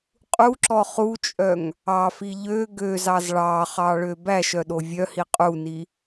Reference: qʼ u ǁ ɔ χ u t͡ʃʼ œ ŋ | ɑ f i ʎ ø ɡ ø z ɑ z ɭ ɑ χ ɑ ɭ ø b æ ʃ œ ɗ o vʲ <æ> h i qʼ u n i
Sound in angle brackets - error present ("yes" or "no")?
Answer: yes